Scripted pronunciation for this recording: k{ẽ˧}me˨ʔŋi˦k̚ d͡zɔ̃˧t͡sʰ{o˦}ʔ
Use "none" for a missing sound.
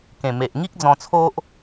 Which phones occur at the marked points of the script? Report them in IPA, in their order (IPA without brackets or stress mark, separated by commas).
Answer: ẽ˨˩, o˦